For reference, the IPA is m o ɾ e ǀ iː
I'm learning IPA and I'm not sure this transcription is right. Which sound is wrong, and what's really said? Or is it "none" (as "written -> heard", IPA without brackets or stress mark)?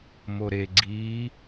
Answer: ǀ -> ɡ͡ǀ